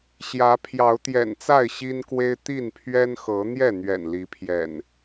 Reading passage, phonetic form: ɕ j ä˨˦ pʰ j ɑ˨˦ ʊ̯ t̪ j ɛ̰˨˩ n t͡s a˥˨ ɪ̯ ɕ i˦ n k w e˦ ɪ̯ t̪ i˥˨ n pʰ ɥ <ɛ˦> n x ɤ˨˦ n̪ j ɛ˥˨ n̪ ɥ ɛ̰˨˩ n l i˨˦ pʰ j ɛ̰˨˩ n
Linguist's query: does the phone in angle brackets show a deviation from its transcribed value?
no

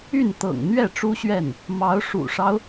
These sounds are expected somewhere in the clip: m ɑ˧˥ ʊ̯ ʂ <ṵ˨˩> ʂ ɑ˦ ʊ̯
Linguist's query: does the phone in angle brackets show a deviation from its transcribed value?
no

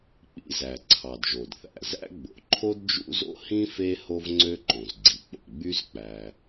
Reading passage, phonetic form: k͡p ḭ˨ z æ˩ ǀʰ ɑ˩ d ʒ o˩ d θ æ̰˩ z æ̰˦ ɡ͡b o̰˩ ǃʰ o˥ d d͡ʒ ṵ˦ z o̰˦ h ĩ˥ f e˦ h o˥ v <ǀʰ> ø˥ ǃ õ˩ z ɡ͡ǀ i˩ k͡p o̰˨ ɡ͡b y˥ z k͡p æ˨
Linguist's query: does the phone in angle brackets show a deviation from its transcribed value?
yes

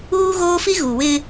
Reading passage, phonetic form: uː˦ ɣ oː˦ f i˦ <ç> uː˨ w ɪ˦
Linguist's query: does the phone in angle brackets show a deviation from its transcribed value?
yes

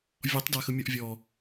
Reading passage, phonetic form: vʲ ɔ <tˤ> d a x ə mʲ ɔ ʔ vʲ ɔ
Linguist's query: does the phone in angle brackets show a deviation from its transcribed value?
no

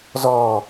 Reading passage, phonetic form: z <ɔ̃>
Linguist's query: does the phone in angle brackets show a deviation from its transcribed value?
yes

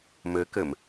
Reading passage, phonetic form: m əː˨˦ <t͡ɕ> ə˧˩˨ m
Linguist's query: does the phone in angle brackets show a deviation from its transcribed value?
yes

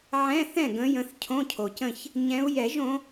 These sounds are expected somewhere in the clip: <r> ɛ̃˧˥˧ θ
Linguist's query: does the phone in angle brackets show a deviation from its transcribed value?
yes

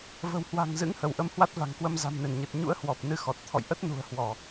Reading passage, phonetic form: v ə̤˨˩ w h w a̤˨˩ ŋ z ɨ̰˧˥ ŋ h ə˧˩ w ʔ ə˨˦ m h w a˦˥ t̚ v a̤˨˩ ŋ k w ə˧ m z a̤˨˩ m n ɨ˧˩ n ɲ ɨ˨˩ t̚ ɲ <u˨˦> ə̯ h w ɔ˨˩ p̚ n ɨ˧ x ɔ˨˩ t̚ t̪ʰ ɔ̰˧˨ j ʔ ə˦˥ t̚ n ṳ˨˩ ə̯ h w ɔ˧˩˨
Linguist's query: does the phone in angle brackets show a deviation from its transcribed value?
yes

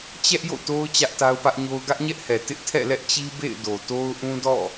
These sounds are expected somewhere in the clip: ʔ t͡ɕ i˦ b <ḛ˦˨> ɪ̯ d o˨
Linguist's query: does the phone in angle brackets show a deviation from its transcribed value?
no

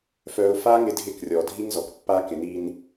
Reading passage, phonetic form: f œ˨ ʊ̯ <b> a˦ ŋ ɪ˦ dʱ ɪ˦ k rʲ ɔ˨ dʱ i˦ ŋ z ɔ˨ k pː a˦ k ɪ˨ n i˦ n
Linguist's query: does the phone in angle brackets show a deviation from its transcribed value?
yes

